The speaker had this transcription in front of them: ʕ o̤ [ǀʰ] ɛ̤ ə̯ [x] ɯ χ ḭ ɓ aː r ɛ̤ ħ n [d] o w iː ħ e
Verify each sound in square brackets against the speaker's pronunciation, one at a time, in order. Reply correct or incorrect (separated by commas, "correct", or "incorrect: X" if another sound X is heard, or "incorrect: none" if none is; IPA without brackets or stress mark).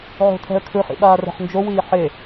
incorrect: tʰ, incorrect: kʰ, incorrect: d͡ʒ